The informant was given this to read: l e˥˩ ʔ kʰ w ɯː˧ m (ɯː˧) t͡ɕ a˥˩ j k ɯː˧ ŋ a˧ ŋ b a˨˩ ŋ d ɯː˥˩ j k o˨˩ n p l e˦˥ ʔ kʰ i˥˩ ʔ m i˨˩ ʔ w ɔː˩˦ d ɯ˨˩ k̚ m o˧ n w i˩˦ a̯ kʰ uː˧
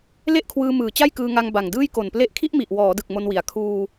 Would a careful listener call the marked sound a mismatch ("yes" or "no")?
yes